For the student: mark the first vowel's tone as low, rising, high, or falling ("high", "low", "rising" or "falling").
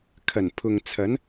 low